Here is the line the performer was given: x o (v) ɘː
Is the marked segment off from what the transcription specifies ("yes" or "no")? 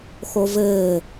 no